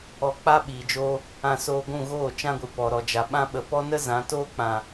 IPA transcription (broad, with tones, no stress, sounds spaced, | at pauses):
ɔ˧ k͡p a˦ ɓ iː˨ d͡ʒ oː˧ | ã˧ s oː˧ ɡʷ ũ˦˨ ɣ oː˦˨ t͡ʃ ã˦ ɡʷ ɨ˨ p ɔ˨ ɾ ɔ˨ d͡ʒ a˨ ɓ ã˦ ɓ ə˨ p ɔ˦ n ə˦ z ã˨˦ t oː˦ k͡p ã˨